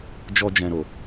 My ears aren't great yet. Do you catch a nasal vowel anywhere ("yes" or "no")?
yes